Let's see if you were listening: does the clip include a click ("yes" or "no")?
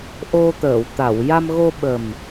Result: no